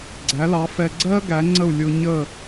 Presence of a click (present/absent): present